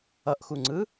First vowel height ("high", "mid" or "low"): mid